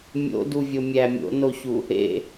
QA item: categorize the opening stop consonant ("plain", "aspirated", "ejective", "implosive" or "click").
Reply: plain